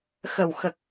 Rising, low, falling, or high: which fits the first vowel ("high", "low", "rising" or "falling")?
low